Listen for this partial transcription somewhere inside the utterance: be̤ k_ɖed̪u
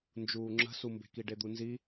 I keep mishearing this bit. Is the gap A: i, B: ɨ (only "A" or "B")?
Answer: A